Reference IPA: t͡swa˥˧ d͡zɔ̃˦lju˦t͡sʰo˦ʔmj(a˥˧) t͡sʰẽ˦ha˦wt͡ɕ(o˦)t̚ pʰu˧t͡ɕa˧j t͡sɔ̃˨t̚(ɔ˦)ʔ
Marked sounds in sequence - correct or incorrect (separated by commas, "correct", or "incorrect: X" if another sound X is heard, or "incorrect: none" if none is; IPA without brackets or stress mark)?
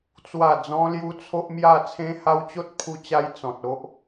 correct, correct, incorrect: o˦